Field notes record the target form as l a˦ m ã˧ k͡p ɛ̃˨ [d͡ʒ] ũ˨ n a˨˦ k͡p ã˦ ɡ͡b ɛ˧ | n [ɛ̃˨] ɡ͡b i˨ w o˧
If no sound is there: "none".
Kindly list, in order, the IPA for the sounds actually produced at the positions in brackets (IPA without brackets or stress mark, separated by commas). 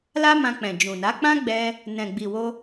d͡ʒ, ɛ̃˨